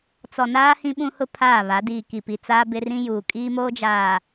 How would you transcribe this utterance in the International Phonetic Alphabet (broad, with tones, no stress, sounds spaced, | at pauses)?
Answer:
t͡s ɔ˨ n aː˦ h ĩ˦ ɓ ũ˦ h ʊ˦ pʰ aː˦˨ β a˨˦ d iː˨ k i˨ p i˨ t͡s aː˦ b ɪ˦ r ĩ˦ j uː˨ kʼ iː˦ m oː˦ d͡ʒ aː˨